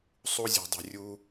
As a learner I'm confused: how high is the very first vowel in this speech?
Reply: high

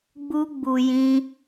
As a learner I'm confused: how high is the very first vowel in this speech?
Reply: high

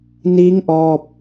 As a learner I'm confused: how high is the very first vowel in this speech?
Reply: high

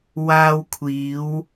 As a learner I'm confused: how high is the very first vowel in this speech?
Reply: low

